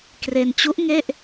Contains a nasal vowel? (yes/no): no